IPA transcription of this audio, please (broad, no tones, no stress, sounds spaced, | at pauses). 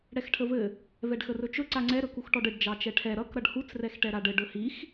ɽ ɛ x ʈʰ ə v ɘ | v ɛ ɖ x ə r ɵ t͡ʃ ɵ ǀ a ŋ͡ǀ ɛ ɾ ɵ k u x ʈ ɔ ɖ ɘ ɖ d͡ʒ ɑ t͡ʃ ɛ ʈʰ ɛ ɾ ʌ k ɾ ʌ ɖ h u t͡s r ɛ x ʈ ɛ ɾ a ɖ ɘ ɖ ɵ h i x